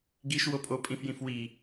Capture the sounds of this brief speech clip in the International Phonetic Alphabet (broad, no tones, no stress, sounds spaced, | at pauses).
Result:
ɡ i ʃ w o pʼ o pʼ ĩ f j ĩ f w i